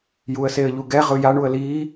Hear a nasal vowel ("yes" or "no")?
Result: no